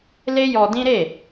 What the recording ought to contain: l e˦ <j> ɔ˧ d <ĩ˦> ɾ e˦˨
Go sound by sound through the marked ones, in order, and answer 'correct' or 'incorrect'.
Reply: correct, correct

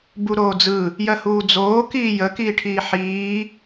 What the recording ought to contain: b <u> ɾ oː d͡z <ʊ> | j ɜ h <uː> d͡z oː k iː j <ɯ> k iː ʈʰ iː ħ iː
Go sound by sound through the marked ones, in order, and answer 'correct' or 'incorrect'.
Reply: correct, incorrect: ɯ, correct, incorrect: ə

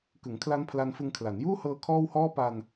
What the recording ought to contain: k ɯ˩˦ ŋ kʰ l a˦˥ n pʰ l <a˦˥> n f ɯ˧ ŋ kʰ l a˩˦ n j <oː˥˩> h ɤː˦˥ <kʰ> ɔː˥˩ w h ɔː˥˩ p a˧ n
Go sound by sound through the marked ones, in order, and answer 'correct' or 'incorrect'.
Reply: incorrect: a˧, incorrect: uː˥˩, correct

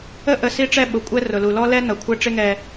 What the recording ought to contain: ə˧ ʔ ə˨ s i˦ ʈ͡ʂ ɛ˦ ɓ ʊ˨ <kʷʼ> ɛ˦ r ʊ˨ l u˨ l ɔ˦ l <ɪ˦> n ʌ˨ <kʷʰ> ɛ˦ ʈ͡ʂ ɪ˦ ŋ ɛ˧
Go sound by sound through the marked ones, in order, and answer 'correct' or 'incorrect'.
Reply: correct, incorrect: ɛ˦, correct

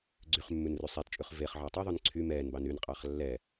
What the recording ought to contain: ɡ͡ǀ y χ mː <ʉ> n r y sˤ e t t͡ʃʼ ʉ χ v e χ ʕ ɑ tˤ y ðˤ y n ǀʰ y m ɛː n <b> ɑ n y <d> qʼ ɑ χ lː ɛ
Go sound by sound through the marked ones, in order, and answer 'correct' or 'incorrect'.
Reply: correct, correct, incorrect: n

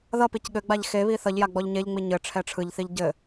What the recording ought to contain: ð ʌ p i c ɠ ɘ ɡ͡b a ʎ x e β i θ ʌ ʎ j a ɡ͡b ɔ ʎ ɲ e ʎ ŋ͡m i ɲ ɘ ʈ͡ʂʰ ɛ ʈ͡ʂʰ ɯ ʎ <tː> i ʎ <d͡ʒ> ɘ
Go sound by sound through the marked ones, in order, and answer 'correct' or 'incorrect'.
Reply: incorrect: θ, incorrect: ɟ

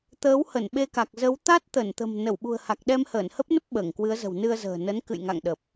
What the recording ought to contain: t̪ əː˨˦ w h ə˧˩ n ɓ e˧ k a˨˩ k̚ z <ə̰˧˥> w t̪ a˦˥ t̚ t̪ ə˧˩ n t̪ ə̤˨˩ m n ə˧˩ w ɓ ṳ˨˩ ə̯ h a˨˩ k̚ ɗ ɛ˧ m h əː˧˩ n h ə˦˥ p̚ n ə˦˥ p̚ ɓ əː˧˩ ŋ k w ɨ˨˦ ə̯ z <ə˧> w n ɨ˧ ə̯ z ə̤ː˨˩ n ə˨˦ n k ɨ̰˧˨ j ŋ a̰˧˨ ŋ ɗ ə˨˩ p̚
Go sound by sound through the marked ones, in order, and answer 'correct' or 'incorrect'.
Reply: incorrect: ə˨˦, incorrect: ə̤˨˩

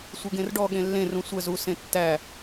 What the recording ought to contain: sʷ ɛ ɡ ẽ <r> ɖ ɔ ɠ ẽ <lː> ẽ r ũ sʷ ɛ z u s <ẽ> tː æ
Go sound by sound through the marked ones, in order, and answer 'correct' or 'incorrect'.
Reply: correct, correct, correct

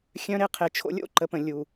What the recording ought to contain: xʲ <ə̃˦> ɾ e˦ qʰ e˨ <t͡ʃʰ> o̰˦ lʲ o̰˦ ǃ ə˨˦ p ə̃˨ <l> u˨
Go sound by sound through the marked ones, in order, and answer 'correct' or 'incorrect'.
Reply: incorrect: œ̃˦, correct, incorrect: lʲ

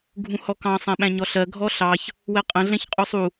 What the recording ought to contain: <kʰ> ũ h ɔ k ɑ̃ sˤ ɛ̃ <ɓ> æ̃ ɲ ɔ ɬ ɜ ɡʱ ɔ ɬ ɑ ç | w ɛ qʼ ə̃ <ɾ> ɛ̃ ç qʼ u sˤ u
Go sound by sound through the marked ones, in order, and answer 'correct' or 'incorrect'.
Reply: incorrect: ɡʱ, correct, incorrect: ɮ

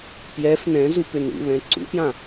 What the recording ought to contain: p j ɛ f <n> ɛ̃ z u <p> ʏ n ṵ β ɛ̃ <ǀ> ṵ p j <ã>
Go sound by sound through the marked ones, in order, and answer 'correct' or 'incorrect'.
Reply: correct, correct, correct, correct

